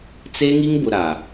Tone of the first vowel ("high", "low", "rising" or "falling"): high